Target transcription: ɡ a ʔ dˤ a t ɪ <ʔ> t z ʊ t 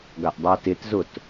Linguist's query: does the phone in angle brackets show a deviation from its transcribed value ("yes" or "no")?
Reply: yes